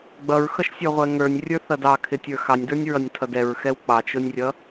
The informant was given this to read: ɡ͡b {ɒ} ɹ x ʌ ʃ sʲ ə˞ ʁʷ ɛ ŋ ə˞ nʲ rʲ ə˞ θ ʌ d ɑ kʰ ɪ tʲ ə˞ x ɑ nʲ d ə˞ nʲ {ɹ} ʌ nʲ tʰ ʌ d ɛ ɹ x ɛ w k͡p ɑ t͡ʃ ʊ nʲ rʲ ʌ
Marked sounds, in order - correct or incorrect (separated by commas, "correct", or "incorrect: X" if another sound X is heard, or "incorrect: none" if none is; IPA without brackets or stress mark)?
incorrect: ʌ, correct